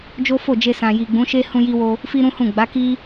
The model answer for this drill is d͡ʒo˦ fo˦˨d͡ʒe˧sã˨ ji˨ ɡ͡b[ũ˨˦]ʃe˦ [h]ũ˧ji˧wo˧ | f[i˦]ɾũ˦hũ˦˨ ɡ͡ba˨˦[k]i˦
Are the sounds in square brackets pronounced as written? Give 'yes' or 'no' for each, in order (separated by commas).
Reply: yes, yes, yes, yes